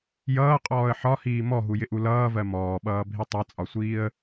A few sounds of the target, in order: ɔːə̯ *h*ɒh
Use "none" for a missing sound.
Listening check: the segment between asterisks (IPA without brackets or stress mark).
ħ